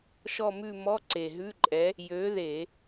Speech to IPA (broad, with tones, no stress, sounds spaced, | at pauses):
ʃ ɔ˦˨ m ʉ˦˨ m ɔ˧˥˧ ǀ e˨˩ ɦ ʉ˧˥˧ ǃʼ ɛ˨˥ | j ø˨˥ ð e˧˩˧